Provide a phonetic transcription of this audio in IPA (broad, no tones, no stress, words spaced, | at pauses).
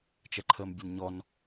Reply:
t͡ʃɛǃʰəːmbʲənɲɔn